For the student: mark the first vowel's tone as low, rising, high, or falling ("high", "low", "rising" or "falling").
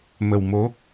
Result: low